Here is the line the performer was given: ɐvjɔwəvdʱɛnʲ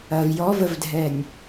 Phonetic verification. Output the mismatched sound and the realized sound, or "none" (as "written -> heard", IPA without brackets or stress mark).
w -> v